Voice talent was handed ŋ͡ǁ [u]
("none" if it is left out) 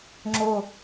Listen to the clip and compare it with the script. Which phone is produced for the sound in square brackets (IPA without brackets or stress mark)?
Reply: o